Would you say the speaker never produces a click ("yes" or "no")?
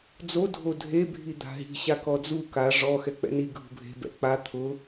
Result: yes